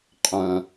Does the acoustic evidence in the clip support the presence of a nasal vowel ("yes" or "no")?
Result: yes